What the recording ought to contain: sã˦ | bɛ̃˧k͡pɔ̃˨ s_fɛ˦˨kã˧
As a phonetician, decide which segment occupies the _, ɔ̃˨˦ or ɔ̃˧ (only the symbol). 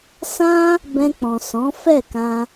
ɔ̃˨˦